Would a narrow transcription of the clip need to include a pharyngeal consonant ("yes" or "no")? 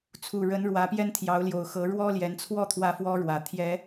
no